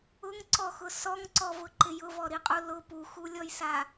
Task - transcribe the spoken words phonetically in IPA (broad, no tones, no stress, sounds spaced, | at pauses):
ʊ ŋ ǀ ɔ x ʊ s ɔ ŋ ǀ ɔ v ʊ ǃ ɪ j ʊ v ɔ ɾ i qʼ u l ʊ p u x u lʲ ɔ j s a